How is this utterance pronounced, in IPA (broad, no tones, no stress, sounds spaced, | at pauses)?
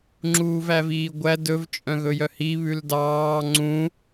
ŋ͡ǁ uː v æ v iː ɡʷ æ d ɵ v t͡ʃʼ œ̃ ɣ ɵ j œ h i β ʉ l d ɑː ŋ͡ǀ ũ